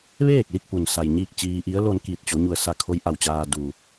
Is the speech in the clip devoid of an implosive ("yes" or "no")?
yes